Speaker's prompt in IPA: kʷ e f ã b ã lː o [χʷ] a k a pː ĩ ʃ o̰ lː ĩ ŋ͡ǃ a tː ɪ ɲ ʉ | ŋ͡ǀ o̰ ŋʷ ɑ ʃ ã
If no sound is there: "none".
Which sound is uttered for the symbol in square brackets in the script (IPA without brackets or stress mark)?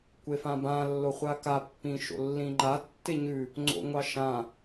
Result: χʷ